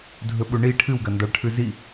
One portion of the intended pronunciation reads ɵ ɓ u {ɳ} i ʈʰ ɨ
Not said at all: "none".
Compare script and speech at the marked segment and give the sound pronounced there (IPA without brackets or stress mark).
ɳ